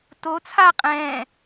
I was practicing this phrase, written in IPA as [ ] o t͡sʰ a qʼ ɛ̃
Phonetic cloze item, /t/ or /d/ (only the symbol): t